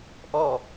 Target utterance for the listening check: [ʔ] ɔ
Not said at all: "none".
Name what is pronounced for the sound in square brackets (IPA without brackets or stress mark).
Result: ʔ